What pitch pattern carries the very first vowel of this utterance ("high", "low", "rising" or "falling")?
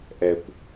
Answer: low